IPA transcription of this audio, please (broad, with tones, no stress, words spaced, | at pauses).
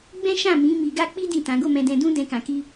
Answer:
ɡ͡bɛ̃˦ʃã˦˨mĩ˨˦ mi˧ɡa˦ k͡pi˦ dĩ˦˨tã˨˦ ɡo˦˨mɛ̃˧dɛ̃˧ dũ˦dɛ̃˧kã˨ ki˧